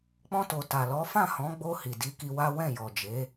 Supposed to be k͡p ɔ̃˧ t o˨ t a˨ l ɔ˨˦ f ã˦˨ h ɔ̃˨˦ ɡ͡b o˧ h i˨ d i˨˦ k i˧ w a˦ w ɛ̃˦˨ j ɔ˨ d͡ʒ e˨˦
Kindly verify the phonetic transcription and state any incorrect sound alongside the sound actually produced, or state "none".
none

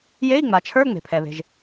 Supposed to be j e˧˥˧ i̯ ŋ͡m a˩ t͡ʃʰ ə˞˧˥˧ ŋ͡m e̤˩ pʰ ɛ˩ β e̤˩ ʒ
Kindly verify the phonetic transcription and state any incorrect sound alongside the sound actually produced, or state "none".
none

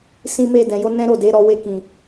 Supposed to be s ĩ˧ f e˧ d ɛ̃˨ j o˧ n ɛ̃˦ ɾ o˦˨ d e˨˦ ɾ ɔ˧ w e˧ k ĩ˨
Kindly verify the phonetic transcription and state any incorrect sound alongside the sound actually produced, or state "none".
f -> m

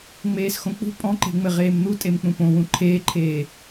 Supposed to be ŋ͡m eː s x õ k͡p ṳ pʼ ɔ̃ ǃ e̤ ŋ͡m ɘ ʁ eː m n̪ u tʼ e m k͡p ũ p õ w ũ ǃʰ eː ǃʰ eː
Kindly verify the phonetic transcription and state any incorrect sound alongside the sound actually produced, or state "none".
none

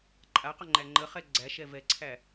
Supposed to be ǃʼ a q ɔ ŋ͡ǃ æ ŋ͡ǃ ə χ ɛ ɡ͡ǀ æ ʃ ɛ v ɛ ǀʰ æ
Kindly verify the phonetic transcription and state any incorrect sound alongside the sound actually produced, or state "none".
none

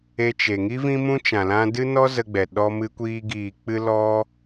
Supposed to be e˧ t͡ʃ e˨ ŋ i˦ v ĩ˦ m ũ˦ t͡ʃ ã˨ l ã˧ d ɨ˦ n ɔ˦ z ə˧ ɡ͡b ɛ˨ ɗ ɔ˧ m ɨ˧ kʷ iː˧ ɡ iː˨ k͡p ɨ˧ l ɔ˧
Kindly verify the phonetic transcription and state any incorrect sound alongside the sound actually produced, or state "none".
none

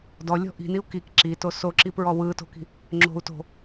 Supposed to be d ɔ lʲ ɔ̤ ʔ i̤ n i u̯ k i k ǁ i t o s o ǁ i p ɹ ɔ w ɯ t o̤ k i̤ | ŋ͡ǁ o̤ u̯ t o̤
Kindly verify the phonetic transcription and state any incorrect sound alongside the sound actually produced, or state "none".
none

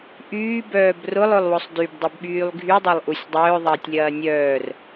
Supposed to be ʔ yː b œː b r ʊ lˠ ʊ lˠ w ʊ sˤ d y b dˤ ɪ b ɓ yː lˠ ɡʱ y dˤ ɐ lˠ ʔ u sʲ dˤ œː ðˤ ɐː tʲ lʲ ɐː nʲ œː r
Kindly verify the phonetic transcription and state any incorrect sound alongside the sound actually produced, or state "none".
none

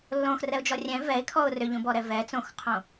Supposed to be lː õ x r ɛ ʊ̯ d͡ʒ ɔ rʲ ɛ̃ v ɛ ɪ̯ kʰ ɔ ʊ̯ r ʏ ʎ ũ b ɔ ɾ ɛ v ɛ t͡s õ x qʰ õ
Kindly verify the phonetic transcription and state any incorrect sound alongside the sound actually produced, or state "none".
none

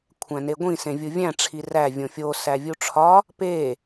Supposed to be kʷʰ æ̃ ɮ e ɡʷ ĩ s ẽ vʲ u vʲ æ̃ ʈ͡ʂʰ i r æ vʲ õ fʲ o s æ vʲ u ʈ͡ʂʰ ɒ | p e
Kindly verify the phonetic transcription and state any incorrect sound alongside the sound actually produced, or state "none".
ɮ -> n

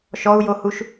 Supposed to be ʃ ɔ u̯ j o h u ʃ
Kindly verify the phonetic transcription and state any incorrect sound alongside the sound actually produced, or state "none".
none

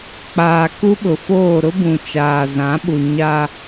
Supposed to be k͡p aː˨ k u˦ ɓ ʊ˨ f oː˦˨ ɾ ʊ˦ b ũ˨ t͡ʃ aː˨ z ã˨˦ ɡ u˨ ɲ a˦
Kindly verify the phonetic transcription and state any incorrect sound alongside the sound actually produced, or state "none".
ɡ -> ɓ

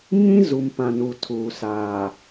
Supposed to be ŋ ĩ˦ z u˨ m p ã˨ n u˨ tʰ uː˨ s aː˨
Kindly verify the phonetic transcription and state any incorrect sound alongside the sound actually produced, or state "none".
none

